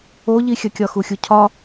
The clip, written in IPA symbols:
o ʎ i xʲ ɐ kʲ ɒ x u xʲ u cʰ ɒ

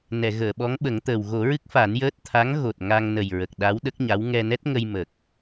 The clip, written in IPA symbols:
n ɛ˨˩˨ ɣ əː˨˩˨ ɓ ɔ˧˥ ŋ ɓ ə˨˩˦ ŋ t̪ əː˨˩ w ɣ o˨˩˦ ɹ ɨ˦˥ k̚ f a˨˩˦ n j əː˦˥ t̚ t̪ʰ a˧˥ ŋ ɣ o˨˩ t̚ ŋ a˧ ŋ n ə˨˩ j ɹ ə˨˩ k̚ ɗ a˧˥ w ɗ ə˦˥ k̚ ɲ a˧˥ w ŋ ɛ˧ n ɛ˦˥ t̚ ŋ ə˧ j m ə˨˩ k̚

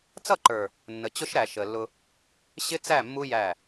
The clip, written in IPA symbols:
t͡s ʌ˦˨ ǃ ə˞˨ | nː ə˨ t͡ɕ ʊ˦ ʃ ɾ æ˨ ʃ ə˨ lː ʊ˦ | ɕ ɪ˦ t͡s æ˦˨ mː u˦ j æ˦˨

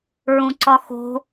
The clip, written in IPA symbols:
ɹ ũ ǀ ɒ x o̤

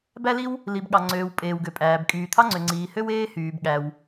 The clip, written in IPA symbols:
b æ˥ l i˥ w | l i˩ b ɠ ɑ˩ ŋ͡ǀ øː˩ w pʼ eː˩ w ɡ ø˩ pʼ æː˩ b kʼ yː˩ t̪ʰ ɑ˥ ŋ͡ǀ ø˩ ŋ͡ǀ iː˩ h ø˥ w eː˥ h yː˩ b ɠ æ˩ w

